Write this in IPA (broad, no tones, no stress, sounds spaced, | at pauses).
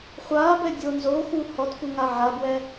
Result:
χʷ aː b ɛ dʲ o n z oː x u h ɔ t f u ŋ a ʕ a b w ɛ